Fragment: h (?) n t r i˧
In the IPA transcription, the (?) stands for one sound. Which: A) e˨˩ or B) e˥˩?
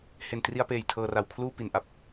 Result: A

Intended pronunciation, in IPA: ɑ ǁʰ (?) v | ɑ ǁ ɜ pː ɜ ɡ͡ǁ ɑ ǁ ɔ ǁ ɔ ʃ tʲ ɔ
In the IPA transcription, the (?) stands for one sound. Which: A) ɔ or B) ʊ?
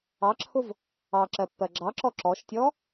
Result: B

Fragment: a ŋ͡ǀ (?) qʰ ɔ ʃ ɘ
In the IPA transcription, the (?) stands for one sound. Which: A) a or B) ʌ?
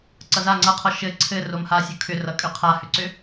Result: B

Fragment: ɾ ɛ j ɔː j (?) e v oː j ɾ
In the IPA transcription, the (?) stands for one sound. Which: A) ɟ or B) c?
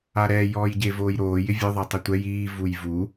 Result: A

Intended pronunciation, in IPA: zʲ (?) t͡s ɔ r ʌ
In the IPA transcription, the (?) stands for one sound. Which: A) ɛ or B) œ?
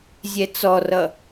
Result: A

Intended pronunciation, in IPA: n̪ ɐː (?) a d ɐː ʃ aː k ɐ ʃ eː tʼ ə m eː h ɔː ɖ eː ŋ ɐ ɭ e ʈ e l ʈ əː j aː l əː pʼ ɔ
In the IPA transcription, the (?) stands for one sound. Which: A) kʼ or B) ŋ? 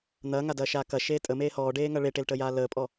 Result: B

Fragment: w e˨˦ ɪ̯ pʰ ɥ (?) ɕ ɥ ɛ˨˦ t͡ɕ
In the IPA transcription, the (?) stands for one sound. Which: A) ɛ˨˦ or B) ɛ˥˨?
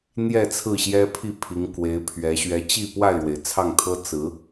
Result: A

